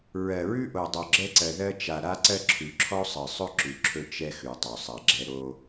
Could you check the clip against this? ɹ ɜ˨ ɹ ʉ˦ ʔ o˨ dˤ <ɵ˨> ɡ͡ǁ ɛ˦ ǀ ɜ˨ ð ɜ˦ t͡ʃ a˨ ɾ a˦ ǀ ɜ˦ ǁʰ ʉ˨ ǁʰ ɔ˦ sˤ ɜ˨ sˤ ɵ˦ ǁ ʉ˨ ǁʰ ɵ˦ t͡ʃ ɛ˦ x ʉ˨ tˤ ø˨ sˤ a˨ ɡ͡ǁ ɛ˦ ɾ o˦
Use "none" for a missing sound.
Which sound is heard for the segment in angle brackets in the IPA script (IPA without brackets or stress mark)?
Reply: ɵ˨